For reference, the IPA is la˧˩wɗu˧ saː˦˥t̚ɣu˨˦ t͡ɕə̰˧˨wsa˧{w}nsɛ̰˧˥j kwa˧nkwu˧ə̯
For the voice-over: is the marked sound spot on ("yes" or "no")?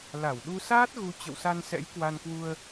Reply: no